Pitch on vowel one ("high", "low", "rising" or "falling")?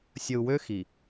low